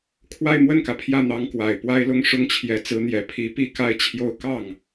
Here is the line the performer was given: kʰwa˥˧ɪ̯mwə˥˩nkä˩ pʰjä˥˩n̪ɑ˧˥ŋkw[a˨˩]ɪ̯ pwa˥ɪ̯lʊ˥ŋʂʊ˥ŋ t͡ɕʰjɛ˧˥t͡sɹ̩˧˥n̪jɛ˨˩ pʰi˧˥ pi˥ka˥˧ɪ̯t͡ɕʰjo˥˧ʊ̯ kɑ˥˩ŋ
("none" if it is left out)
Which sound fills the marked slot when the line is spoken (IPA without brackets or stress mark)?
a˨˩